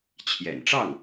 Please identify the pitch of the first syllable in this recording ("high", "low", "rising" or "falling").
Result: low